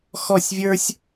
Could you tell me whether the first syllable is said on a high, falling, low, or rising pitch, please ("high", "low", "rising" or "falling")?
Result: falling